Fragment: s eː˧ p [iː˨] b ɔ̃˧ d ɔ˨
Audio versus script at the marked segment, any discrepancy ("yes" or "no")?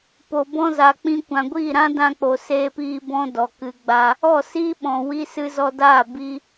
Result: yes